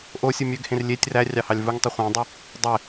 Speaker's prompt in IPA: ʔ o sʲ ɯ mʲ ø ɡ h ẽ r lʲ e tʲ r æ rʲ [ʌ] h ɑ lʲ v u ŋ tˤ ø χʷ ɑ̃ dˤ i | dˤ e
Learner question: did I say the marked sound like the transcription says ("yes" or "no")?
no